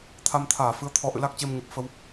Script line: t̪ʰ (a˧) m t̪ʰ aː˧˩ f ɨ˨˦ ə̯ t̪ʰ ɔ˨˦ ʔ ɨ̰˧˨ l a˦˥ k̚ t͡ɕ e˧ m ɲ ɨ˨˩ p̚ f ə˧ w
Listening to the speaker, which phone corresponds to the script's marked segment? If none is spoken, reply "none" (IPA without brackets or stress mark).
a˧